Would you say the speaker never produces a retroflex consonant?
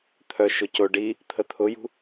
no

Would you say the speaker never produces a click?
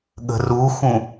yes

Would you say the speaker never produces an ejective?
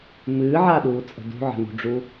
no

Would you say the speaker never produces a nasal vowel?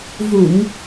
yes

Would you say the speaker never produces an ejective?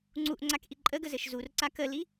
no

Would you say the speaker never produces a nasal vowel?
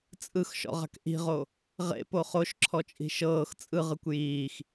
yes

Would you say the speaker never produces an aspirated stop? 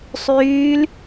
yes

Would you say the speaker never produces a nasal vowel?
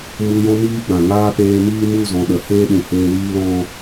no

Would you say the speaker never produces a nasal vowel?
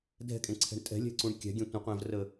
no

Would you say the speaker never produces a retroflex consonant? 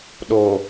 yes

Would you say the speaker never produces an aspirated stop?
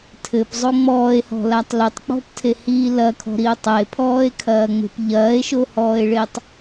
no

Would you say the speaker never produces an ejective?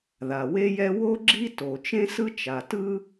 yes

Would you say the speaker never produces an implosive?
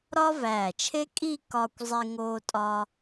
yes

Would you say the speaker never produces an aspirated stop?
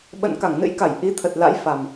no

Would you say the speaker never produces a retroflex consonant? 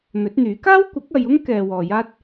yes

